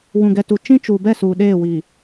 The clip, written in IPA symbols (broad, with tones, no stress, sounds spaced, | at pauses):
w ũ˨ ɡ ɛ˨ t u˨ t͡ʃ ĩ˦ t͡ʃ u˨ b ɛ˦˨ s uː˨ ɗ eː˦˨ w i˨